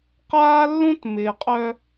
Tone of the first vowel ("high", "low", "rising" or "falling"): high